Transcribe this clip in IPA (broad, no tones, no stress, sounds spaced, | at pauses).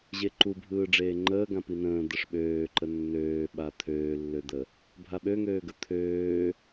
ʑ e ǃ u bʱ ɯː ɖ͡ʐ eː ŋ͡ǃ əː ɡ ã p i n ə̃ː d̪ ə ʂ ɓ øː ǃ ə nː øː ɓ a t̪ʰ øː lː ø d̪ ə | bʱ a ɓ ø ŋ øː ɡ ə t̪ʰ øː